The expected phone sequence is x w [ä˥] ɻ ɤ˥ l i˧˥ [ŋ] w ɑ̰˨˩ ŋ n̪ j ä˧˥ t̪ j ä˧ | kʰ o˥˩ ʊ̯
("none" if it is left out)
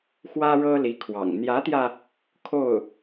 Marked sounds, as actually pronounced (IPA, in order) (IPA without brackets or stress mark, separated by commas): ä˥, kʰ